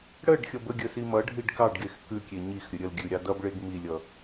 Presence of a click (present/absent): absent